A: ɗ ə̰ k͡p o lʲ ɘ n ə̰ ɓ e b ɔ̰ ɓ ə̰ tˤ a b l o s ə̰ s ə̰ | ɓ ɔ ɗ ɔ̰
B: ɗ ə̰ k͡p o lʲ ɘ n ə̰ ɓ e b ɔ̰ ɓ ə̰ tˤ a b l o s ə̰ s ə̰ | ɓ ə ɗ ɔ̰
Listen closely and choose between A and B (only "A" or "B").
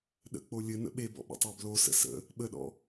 B